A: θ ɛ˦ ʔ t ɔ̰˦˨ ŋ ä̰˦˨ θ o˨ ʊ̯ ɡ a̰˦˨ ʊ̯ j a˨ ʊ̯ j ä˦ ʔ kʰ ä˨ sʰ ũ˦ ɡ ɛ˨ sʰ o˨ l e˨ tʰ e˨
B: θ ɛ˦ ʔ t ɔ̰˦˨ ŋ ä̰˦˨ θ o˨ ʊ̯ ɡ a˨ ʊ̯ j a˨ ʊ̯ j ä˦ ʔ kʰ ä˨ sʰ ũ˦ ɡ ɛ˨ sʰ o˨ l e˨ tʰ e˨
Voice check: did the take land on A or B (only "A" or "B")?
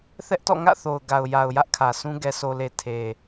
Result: B